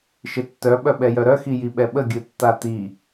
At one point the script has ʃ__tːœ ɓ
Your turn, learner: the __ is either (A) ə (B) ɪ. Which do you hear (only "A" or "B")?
B